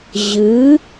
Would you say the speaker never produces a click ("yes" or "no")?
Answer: yes